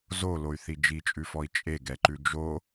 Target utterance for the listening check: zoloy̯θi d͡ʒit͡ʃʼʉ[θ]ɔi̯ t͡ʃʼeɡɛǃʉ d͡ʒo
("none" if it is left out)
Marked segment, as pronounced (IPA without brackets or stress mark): f